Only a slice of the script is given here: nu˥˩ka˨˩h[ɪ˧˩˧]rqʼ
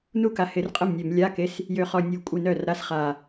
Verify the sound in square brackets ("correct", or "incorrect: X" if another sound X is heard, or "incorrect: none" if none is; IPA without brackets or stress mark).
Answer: correct